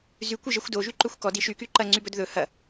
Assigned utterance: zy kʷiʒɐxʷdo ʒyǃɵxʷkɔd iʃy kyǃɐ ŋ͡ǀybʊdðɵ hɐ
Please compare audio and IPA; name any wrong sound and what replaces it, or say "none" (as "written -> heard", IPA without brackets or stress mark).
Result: ʊ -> ɵ